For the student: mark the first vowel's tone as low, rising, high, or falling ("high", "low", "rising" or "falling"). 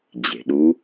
low